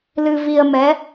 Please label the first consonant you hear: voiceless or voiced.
voiced